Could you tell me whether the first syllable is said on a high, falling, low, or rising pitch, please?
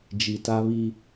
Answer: low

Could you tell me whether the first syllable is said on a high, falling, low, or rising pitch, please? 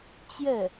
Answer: falling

